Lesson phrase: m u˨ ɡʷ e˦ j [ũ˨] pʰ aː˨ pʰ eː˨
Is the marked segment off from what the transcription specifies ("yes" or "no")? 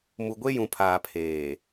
no